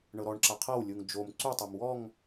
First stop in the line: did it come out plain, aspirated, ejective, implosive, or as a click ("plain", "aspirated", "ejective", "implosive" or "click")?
click